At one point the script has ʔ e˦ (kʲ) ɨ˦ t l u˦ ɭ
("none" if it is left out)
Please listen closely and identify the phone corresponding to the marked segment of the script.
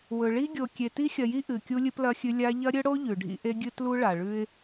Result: ɡʲ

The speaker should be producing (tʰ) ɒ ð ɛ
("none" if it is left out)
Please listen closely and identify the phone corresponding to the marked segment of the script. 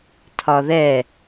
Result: tʰ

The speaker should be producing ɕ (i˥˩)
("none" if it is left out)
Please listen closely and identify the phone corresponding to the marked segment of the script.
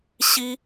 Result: i˥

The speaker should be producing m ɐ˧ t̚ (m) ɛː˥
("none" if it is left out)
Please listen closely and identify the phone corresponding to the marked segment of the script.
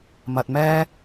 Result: m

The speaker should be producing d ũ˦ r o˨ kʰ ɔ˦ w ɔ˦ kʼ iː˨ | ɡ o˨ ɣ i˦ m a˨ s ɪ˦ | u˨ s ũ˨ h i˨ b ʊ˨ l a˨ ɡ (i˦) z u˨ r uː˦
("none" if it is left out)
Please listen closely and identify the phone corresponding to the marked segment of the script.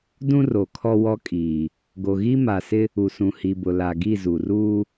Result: i˦˨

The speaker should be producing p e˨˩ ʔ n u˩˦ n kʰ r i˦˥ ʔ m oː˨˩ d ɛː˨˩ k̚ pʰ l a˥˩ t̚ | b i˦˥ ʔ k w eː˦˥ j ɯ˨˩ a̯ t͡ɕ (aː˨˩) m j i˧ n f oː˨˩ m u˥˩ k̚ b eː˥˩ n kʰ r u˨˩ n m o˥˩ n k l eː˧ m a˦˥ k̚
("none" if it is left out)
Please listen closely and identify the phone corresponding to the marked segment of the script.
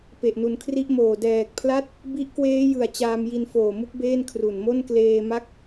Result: aː˧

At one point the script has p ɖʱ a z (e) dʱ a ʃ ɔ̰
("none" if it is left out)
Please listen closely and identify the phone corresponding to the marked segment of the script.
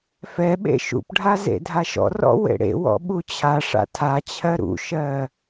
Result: ḛ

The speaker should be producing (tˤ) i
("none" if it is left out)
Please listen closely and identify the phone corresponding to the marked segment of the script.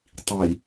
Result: tˤ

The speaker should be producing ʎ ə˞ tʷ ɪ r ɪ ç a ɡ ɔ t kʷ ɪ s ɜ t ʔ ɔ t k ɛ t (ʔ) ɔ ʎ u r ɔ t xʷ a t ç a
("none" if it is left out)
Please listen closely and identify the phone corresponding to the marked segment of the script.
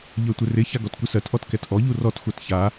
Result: ʔ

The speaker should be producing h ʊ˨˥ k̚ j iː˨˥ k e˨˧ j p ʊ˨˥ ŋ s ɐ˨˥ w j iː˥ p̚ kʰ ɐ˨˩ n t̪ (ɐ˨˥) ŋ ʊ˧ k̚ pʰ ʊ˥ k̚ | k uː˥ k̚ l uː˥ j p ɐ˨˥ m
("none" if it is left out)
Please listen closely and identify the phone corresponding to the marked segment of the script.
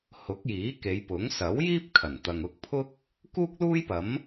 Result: ɐ˨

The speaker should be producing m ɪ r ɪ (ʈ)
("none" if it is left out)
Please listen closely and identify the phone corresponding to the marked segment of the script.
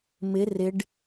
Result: ɖ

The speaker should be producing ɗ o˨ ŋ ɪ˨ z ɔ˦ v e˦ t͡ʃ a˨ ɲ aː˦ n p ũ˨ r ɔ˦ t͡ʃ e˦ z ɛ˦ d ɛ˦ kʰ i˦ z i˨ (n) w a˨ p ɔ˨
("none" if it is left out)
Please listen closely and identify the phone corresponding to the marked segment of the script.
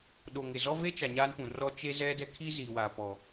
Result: none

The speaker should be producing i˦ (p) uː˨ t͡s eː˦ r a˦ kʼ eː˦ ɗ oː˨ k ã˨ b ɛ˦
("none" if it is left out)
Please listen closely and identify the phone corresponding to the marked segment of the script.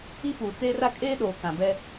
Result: p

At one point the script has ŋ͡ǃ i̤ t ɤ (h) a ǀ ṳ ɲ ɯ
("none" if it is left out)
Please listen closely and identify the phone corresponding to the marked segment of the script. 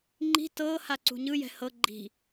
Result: h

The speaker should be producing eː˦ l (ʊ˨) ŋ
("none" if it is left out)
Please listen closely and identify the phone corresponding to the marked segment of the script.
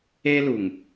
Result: u˨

